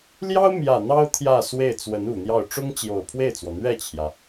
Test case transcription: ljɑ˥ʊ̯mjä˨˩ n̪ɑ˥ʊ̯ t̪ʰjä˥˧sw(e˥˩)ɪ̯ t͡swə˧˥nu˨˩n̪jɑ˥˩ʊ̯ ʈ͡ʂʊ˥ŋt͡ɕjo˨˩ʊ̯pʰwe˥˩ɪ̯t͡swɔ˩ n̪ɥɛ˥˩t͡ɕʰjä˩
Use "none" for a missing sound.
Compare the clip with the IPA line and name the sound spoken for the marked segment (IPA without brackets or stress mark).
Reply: e˥˩